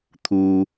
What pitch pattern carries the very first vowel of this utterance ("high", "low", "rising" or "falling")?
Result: low